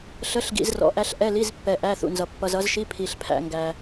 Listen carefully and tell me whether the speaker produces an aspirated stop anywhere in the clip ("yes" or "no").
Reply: yes